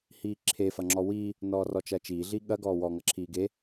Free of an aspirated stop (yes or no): no